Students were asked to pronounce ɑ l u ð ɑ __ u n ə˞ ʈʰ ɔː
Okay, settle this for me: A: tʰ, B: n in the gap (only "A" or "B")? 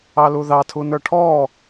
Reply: A